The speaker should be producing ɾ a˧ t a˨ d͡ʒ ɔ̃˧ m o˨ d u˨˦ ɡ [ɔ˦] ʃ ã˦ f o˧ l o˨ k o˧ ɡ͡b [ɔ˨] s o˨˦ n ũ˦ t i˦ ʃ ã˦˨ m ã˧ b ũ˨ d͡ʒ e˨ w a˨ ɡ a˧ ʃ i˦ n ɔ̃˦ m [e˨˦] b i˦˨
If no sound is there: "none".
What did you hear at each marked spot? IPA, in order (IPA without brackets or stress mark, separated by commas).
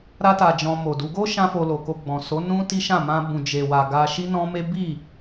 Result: o˦, ɔ̃˨, e˦